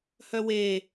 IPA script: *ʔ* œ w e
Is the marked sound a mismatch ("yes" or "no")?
yes